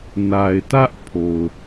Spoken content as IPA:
na˨ɪ̯tä˦ʔ pʰo˨ʊ̯

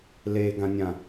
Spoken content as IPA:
leɡãnʲã

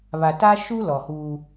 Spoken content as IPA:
βa˨ta˦ʃu˦ lɔ˨huː˦

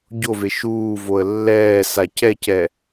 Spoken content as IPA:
ɟove ʃuːvoə̯ lːɛːsa cɛcɛ

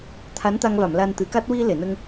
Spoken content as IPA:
t̪ʰa˧˥nt̪a˧ŋva˨˩˨m la˧nt̪ɨ˨˩˦ka˦˥t̚ wi˧ le˨˩˨nə˧ŋ

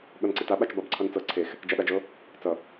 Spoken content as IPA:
ɠʌnǀita ɓat͡ʃbɑbǀʰʌnt͡sɤ ǀʰex | d͡ʒaɗad͡ʒɤ | t͡sʌ

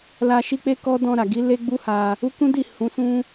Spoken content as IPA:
la˧ʃi˦k͡pe˦ kɔ˦ dɔ̃˧ɾa˨ɡi˨˦ le˦ɡ͡bu˦ha˧ | u˦ kũ˦di˦˨ hũ˨˦sũ˦

